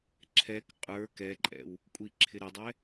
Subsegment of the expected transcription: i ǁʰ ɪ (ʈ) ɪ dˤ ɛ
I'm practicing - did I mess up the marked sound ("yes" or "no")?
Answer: yes